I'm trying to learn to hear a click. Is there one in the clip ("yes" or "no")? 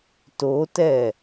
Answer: no